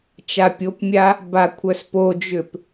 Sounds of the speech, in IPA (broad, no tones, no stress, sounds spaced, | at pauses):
t͡ʃ a pʲ o p mʲ a | b a kʷʰ œ s p o d͡ʒ ʏ p